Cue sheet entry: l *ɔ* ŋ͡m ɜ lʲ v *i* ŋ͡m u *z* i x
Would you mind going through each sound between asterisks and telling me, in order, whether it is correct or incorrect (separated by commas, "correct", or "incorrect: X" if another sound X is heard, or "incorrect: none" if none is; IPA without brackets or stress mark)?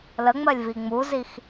incorrect: ə, correct, correct